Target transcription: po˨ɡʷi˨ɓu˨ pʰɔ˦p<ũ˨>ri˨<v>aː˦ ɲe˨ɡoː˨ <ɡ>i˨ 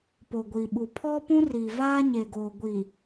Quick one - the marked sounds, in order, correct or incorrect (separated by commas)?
incorrect, correct, incorrect